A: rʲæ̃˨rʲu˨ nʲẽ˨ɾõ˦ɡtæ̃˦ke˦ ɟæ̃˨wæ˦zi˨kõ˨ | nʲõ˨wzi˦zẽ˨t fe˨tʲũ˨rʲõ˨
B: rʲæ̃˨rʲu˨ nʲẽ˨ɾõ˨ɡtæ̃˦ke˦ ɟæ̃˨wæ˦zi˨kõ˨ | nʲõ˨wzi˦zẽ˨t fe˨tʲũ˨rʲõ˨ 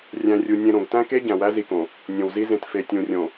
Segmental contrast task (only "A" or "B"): B